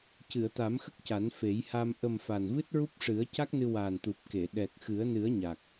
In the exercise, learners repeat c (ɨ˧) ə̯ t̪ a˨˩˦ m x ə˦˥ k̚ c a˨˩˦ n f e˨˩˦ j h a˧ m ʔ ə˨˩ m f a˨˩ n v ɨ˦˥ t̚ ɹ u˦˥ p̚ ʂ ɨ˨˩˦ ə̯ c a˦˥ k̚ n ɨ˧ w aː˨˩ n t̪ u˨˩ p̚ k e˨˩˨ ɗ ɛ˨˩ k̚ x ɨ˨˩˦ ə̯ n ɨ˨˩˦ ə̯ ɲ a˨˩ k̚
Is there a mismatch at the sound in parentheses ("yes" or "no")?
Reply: yes